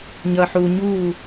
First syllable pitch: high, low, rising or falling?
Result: low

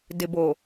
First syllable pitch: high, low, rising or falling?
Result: low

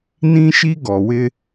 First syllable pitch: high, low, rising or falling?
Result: high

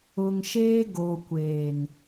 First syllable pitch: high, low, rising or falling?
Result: low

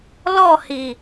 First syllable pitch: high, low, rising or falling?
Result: falling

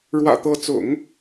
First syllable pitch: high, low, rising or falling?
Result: low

